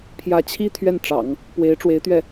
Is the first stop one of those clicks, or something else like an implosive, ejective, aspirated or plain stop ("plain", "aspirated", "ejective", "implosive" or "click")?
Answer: aspirated